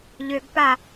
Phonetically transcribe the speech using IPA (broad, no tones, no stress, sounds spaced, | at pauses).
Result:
ʎ ø ɡ p a